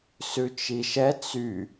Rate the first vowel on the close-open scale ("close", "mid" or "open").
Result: close